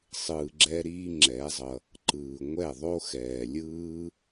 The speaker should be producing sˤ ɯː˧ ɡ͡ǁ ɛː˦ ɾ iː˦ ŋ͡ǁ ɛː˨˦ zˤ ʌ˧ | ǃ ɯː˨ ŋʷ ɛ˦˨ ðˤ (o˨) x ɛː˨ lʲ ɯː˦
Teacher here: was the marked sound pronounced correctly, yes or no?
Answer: no